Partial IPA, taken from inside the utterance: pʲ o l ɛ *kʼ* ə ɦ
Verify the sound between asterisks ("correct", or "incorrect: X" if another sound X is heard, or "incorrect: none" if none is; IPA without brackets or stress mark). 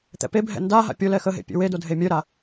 incorrect: x